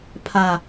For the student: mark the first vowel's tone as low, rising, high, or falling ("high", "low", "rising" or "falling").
low